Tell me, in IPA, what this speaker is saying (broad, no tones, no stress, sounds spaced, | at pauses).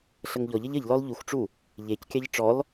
ɬ ə ŋ ʎ ɔ ʎ ə ʎ ə ʎ l ɔ l ʎ u x ʈ͡ʂ u | ʎ e c kʲ ɑ ʎ ʈ͡ʂ ɔ l